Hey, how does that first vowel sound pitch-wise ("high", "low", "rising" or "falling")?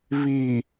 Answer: low